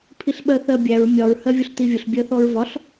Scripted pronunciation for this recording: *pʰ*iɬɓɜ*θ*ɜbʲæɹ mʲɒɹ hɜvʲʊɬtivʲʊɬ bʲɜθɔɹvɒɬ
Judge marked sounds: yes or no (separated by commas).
yes, yes